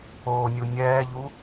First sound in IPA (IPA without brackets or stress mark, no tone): oː